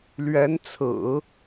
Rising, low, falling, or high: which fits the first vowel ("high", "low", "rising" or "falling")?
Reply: rising